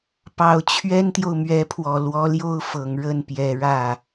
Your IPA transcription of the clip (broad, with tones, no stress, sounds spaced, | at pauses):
p ɑ˨˩ ʊ̯ t͡ɕʰ ɥ ɛ˥ n t̪ j o˨ ʊ̯ m ɥ ɛ˧˥ pʰ w ɔ˨˩ l w ɔ˧˥ l j o˥ ʊ̯ f ɤ˨˩ ŋ ɻ ə˥˩ n p j ɛ˨˩ ɻ ä˥˩